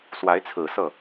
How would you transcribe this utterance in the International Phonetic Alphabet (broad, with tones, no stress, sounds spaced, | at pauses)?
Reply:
s w a˧˥ ɪ̯ t͡sʰ ɹ̩˨˩ s ɤ˥˩